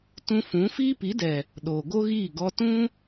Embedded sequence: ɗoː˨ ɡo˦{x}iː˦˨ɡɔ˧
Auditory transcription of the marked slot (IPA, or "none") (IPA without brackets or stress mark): ɣ